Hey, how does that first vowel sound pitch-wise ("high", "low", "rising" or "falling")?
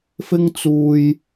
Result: high